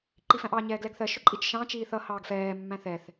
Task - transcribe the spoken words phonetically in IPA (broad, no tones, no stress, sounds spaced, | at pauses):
ǃ i f æ̃ ʔ ɑ ɲ ɛː ɡ l ɛ ɡ θ ɜ ʃ ʊ ǃʼ i t͡ʃ ʃ ɑ̃ t͡ʃ iː θ ʌ h ɑː ɡ f ɛː mː æ̃ θ ɛ θ